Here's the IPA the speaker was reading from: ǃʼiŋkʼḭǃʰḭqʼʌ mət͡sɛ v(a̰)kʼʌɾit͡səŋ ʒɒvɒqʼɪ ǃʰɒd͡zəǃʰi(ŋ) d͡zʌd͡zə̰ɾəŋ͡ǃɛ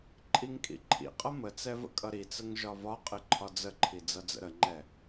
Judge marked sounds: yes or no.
no, no

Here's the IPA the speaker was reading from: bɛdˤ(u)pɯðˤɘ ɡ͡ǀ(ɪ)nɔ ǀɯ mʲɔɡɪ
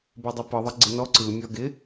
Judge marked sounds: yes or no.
yes, yes

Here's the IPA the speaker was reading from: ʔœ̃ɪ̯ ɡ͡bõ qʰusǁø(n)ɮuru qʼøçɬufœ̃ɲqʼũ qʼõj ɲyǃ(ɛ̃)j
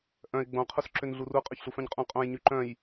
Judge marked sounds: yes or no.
yes, no

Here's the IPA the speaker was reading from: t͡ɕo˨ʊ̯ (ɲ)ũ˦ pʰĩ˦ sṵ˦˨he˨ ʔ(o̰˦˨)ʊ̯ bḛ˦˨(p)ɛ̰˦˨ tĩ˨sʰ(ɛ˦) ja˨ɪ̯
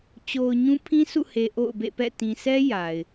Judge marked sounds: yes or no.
yes, yes, yes, yes

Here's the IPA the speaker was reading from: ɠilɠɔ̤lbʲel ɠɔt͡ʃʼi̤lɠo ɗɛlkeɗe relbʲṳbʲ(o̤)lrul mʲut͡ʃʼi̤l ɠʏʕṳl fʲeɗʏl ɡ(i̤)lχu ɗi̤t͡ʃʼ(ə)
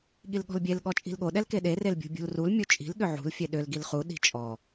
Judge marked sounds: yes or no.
no, no, no

